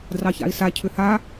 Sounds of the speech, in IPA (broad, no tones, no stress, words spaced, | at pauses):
drɑça̰i̯sa cʰʏha